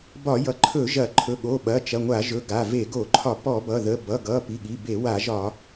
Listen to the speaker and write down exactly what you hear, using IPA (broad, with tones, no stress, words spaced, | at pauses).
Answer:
bɒ˧˩˧jʌ˩˧˩ ǃʰɵ˧˩˧ ʒɐ˧˩˧ ǃʰɵ˩˧˩ɠo˩˧˩ɓɐ˩˧˩ t͡ʃɐ˩˧˩ŋʷa˧˩˧ʒɵ˩˧˩ ɡa˩˧˩ve˧˩˧ ɡo˧˩˧ǃʰɒ˧˩˧ pɔ˧˩˧bʌ˩˧˩ðə˩˧˩ bʌ˩˧˩ɡʌ˩˧˩ pi˩˧˩ɠi˩˧˩be˧˩˧ wa˧˩˧ʒɒ˧˩˧